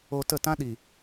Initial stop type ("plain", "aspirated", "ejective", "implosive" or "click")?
plain